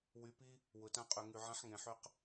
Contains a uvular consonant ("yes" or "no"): yes